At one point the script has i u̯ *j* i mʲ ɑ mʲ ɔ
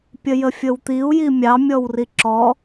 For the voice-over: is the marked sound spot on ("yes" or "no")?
yes